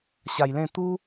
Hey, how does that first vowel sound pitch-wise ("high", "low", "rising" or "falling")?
low